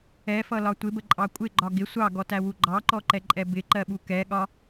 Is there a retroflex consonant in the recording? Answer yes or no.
no